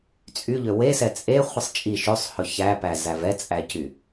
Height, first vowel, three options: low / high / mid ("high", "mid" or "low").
high